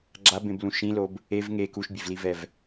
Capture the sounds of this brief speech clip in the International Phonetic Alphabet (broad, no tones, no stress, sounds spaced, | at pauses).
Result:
ɡ͡ǁ a b ẽ b l ũ ʃ ĩ l o b | e v ŋ e k u ʃ bʲ e v l i v ɛ v